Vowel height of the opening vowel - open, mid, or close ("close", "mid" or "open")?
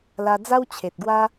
open